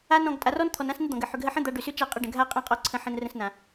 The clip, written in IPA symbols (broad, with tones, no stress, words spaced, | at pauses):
a˧nɔ̃˨ɡ tʼa˨rɔ˦nt̪ʰɔ˨nã˦s nə˦d̪ɔ̃˨ɡə˨ ħʏ˨ɡɦə˧ħə̃˦ d̪a˧ɖʏ˨sʏ˦t͡ʃa˦˨ qʼə˧ɖə̃˨ɡʱa˦ qʼã˦qʼɔ˧ǀʰə̃˧ħə̃˧n rə̃˧snã˨